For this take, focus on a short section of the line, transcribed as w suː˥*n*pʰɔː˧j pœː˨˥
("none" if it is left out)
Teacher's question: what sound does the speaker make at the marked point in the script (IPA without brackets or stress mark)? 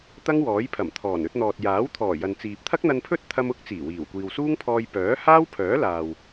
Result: ŋ